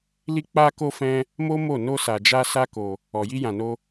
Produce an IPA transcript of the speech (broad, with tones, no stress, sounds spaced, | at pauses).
l i˦ k͡p a˧ k o˧ f ɛ̃˦ | m o˦ m o˦˨ n o˧ s a˨ d͡ʒ a˧ s a˦ k o˧ | ɔ˨ j i˧ j ã˨ n o˧